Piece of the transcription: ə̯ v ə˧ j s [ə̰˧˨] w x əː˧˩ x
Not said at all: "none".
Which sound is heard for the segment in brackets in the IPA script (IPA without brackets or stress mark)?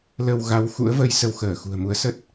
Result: ə˧